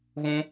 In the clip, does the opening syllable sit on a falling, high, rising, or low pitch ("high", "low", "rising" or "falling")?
high